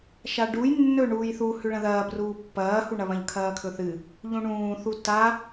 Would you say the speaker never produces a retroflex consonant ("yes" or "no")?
no